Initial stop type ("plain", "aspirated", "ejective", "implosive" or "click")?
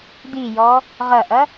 plain